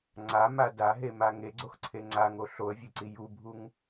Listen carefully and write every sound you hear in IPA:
ŋ͡ǀama daɦema ŋeɡ͡ǀoxǀʰe ŋ͡ǀaŋo ɬoə̯vʲeǀi jubʱuŋ

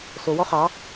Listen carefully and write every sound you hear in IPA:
sowɔ χɑ

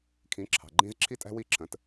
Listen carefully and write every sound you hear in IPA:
kʰĩ˨˦ǁʰɑ̤˨ɡ͡ǃĩ˦z ǁʰi˦tʼæ̤˦wi˦˨ ǁʰə̃˨˦t

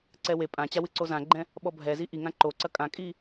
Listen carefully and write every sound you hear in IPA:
ǀɛwe pʼãt͡ɕawɨ ǀozãɡ͡ǃɛ̃ | ɓɔbʱɛzi ʔi ŋãǃo ǀɐkʼãkʼi

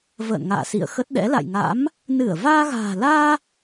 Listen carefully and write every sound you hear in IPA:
və̰ː˧˨nŋa̰ː˧˨ sḭ˧˨ə̯xə˦˥t̚ɗɛ̰˧˥ la̰˧˨jŋa̰˧˥m | nɨ˧˩ə̯ vaː˧ɣa̤ː˨˩laː˧

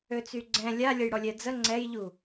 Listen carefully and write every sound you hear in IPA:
øt͡syɡ͡ǀɛ̃ lʲa lʲəjɽɔlʲɛd͡zə ŋ͡ǀɛjʎu

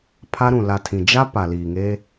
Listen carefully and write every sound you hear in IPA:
pʰa˦ɾũ˨ la˨tʰĩ˨ d͡ʒa˦ pa˨liː˨ŋeː˦

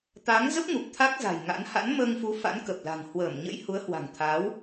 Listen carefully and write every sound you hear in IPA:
t̪a˨˦ŋ zə˦˥p̚ŋu˨˩p̚ t̪ʰa˦˥k̚za̤˨˩jŋa̰˧˥n ha̰˧˥nməː˧ŋfu˨˦ fa̰˧˥nkə˨˩p̚la̤˨˩ŋ hwəː˧˩mɲə̰˧˥j hu˨˦ə̯hwa̤˨˩ŋt̪ʰaː˨˦w

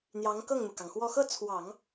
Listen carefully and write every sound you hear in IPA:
n̪jɑ˧˥ŋkɤ˥˩ŋn̪u˩kɑ˩ŋ xwɔ˥˧ xɤ˥˩ t͡sʰwɑ˨˩˦ŋ

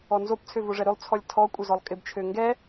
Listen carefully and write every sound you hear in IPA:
ɔnzop t͡sʰøvoʐɛɾølˠ t͡sʰɔlʲtʰɔ kʷʼœzɔlˠkʼɪb t͡ʃʰøŋɡɛ

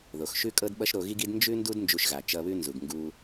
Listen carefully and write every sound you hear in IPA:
ðo˩xʃʉ˥kʼɤ˥d ɓʌ˥ʃɾo˧ɣi˥ɡi˥d nd͡ʒʉ˥ndu˥d nd͡ʒu˧ʃɣa˩ t͡ʃʌ˧βʉ˥ nzu˩ɡ ŋɡu˧

